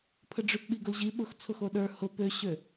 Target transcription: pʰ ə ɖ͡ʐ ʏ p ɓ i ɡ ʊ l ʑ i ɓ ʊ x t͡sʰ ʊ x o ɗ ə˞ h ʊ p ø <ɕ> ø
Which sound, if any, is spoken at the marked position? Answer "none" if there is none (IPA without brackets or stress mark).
ɕ